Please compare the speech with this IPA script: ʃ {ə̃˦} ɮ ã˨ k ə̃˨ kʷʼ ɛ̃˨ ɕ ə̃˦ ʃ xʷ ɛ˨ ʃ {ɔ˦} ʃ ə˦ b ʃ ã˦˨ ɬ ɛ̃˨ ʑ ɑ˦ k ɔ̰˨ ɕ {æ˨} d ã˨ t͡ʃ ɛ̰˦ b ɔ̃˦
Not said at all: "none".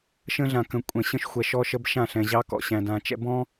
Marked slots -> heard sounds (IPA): ə̃˦, ɔ˦, æ̃˨

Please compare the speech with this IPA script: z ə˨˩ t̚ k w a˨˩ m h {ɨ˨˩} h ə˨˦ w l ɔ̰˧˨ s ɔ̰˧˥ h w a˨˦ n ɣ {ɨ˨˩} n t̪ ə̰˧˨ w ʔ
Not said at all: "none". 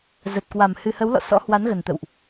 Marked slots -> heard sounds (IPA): ɨ˨˩, ə˨˩

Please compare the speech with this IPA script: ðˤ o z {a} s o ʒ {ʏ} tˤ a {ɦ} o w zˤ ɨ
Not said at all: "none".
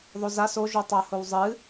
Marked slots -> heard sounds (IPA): a, u, h

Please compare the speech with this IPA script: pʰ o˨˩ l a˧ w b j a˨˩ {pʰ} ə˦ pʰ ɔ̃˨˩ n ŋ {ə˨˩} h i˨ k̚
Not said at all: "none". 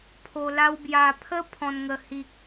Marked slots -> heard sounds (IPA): pʰ, ə˨˩

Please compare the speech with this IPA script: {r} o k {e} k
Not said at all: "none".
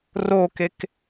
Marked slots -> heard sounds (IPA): r, e

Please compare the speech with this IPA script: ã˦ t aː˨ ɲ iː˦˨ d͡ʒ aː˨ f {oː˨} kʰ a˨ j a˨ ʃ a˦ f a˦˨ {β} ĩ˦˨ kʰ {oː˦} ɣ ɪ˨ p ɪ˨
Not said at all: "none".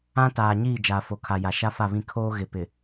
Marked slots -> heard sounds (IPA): o˨, β, oː˦

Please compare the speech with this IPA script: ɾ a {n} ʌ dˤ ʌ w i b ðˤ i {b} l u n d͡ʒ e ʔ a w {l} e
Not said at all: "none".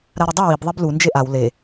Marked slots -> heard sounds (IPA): ɾ, b, l

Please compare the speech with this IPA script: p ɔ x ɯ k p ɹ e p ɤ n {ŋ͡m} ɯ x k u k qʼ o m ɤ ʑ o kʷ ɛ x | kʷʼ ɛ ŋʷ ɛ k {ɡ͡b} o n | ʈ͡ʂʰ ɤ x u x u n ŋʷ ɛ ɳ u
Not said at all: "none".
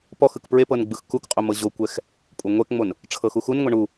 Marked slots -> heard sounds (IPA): ɡ͡b, ŋ͡m

